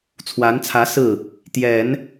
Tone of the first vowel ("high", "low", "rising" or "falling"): rising